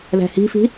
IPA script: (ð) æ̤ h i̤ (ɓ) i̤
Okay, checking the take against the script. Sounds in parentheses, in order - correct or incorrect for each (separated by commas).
correct, incorrect